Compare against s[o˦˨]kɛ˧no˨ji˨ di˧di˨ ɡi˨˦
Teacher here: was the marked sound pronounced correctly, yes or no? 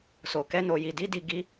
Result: no